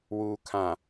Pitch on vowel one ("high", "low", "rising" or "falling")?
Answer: low